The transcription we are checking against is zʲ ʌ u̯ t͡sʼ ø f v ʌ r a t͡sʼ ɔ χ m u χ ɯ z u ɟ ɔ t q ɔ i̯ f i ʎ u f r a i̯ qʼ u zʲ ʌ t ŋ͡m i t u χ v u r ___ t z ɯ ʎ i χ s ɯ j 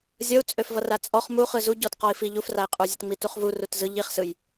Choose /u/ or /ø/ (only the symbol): u